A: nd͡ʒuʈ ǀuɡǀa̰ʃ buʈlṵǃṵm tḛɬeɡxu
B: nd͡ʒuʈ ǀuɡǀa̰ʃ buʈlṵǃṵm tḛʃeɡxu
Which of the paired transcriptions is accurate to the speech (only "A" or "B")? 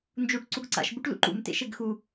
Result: B